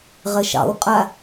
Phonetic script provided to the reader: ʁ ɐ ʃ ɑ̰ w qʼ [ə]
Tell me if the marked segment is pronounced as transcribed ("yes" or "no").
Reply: no